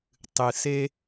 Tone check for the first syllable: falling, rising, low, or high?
low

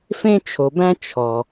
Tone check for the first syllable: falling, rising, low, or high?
high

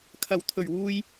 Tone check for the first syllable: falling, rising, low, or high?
low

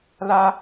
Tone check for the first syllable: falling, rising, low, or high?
high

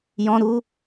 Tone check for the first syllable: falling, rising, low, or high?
high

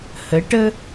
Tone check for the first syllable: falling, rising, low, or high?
rising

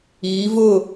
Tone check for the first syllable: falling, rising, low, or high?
rising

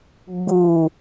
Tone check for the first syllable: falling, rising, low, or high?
low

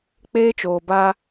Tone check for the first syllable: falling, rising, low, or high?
high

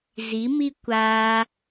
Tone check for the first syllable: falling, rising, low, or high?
rising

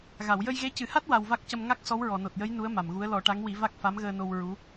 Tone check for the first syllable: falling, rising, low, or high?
low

